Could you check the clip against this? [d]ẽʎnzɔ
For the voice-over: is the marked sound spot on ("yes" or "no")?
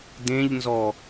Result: yes